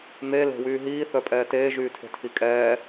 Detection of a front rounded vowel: present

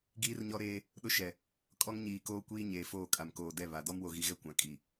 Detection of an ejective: present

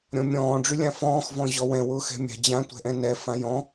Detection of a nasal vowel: present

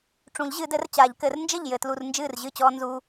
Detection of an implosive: absent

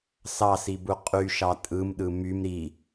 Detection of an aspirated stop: absent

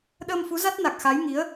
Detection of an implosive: present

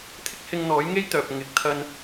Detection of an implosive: absent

